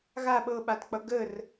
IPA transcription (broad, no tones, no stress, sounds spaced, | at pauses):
ɣ a ɓ ɤ ɓ a t k͡p ʌ ɡ ə r